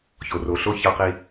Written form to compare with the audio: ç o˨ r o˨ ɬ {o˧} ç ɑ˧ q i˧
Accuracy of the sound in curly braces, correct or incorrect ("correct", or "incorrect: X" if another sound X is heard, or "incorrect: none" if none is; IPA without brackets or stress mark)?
correct